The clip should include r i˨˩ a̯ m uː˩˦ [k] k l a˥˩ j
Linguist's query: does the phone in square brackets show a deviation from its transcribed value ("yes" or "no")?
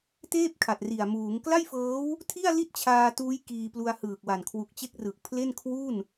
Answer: yes